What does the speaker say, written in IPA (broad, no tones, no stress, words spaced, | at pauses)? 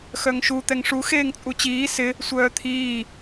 xœŋʃu t̪ɛŋʂu xeːŋt͡sʼut͡ɕiː sɪ | sʷœːt̪ʰiː